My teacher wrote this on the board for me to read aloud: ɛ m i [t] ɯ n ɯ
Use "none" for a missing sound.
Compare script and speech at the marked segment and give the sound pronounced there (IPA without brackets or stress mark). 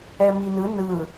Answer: n